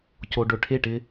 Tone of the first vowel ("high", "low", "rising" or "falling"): low